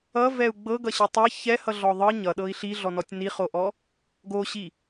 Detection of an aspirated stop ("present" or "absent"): absent